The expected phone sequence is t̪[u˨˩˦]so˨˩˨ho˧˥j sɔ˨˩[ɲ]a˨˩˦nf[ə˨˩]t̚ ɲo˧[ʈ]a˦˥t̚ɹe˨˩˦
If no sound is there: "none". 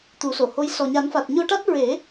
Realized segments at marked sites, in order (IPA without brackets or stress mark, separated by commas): u˨˩˦, ɲ, a˨˩, ʈ